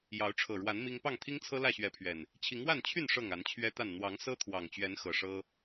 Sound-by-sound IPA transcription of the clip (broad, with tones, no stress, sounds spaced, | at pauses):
j ɑ˨˦ ʊ̯ ʈ͡ʂʰ ɤ˨˩ ɻ w a˨˦ n m i˦ ŋ p ɑ˥˨ ŋ t̪ʰ i˦ ŋ t͡sʰ ɤ˦ l ä˥˨ ɕ ɥ ɛ˨˦ pʰ ɥ ɛ˨˩ n | t͡ɕʰ i˨˦ ŋ w a˥˨ n t͡ɕʰ y˥˨ n ʂ ɤ˥˨ ŋ a˨˦ n t͡ɕʰ ɥ ɛ˦ t̪ a˥˨ n n̪ w ɑ˨˦ ŋ s ɤ˦ t̪ʰ w ɑ˨˩ ŋ t͡ɕ ɥ ɛ˨˦ n x ɤ˨˩ ʂ ɤ˦